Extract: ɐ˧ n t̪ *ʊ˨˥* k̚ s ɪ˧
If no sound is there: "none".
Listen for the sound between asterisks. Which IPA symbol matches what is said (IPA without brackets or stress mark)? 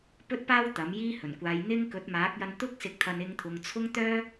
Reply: ʊ˥